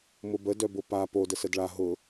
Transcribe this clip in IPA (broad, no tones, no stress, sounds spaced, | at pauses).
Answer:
m ʊ b ə d œ b ʊ p a p o d ə s ə d ɭ a ɦ ʊ